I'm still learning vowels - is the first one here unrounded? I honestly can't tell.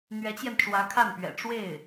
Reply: yes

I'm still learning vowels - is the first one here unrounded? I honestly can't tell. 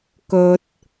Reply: no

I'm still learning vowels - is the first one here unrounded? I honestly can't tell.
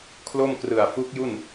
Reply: no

